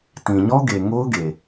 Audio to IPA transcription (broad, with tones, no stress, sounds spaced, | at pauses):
t ĩ˨ ɲ ɔ˦ ɡ e˨ ŋ o˦ ʊ̯ ɡ e˨